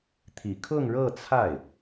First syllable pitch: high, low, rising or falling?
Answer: low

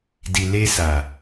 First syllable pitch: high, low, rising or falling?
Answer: low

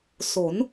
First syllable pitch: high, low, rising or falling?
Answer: rising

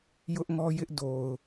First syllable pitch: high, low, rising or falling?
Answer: high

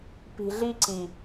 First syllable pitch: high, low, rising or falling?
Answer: low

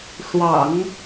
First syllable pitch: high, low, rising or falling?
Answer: low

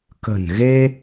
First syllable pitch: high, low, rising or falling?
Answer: low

